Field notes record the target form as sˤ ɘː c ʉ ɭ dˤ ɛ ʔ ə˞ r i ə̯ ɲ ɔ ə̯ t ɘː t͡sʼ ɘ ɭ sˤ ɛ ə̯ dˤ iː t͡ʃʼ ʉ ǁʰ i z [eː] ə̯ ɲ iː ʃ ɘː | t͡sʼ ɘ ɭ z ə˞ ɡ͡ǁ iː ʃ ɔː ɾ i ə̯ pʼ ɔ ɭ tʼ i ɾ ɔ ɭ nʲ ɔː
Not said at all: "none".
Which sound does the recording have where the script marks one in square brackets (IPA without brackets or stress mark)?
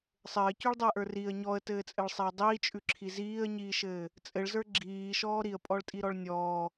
iː